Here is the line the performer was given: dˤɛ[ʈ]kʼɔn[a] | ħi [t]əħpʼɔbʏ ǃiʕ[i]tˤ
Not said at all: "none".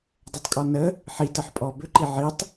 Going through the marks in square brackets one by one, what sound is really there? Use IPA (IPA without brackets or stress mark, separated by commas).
tˤ, ə, t, i